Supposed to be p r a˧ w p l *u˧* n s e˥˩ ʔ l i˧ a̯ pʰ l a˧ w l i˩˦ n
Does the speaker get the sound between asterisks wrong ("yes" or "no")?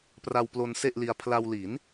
yes